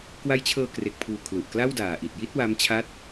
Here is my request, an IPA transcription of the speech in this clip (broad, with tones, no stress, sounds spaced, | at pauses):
k w a˦˥ j t͡ɕʰ ɤː˧ k r e˨˩ k̚ pʰ uː˨˩ kʰ l u˨˩ ʔ k l a˥˩ w d aː˨˩ ʔ i˨˩ t̚ j i˥˩ t̚ w a˦˥ m t͡ɕʰ a˦˥ t̚